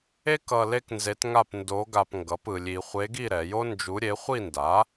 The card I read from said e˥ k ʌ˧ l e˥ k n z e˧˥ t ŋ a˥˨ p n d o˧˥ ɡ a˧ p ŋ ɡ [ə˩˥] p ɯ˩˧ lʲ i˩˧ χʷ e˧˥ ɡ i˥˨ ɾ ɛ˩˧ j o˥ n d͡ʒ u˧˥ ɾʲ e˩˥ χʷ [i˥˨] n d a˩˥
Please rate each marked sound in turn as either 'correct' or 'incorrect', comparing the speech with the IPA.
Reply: incorrect, correct

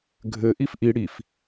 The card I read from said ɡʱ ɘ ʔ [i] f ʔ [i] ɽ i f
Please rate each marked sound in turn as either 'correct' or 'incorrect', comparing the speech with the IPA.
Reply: correct, correct

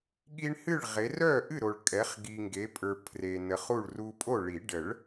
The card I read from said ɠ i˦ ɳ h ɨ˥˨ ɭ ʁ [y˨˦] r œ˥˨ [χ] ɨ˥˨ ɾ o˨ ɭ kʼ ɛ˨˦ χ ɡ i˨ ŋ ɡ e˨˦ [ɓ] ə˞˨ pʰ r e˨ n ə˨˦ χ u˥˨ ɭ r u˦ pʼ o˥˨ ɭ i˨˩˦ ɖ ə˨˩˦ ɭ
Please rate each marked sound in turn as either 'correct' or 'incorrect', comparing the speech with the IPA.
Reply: incorrect, incorrect, incorrect

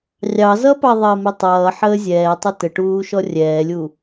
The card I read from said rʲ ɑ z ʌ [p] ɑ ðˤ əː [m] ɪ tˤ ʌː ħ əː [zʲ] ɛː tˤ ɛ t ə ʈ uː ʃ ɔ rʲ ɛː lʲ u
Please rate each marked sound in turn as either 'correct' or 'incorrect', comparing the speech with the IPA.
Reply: correct, correct, correct

